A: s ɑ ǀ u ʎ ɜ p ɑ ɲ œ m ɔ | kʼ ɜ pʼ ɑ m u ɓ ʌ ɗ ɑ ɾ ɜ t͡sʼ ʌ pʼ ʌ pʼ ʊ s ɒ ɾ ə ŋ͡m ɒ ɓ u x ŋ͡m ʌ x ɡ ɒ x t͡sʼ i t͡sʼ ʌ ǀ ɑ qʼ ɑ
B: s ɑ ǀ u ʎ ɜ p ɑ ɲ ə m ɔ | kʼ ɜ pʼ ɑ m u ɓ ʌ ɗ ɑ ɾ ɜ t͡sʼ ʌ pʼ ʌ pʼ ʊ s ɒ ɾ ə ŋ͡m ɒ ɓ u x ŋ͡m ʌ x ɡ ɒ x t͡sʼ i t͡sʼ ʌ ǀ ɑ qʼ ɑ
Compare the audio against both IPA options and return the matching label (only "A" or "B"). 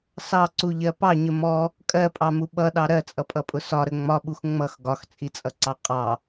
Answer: B